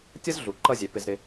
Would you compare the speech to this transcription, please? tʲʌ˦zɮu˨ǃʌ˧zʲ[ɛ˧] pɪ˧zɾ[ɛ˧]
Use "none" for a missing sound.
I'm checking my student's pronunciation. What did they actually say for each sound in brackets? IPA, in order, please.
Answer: ɛ˨, ɪ˧

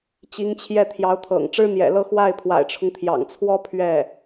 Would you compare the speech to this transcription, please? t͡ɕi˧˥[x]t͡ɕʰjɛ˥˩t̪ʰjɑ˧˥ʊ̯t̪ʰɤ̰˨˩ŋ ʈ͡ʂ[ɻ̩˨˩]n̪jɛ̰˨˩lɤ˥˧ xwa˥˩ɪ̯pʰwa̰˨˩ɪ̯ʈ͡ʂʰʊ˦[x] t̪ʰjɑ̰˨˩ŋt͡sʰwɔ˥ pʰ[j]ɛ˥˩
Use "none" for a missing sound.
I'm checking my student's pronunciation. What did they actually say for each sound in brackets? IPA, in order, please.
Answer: ŋ, ɻ̩˥, ŋ, ɥ

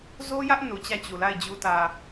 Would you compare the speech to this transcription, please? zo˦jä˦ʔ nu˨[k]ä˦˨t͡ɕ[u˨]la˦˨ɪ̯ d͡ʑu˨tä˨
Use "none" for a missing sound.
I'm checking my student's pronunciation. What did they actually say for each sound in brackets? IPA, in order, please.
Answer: t͡ɕ, u˨

